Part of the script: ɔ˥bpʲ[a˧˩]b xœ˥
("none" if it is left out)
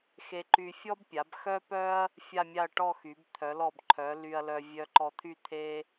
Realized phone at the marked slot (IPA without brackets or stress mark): a˩˧